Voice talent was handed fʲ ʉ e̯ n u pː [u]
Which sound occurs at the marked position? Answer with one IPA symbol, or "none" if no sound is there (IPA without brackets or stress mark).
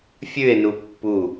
u